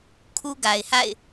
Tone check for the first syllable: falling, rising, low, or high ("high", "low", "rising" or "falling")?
high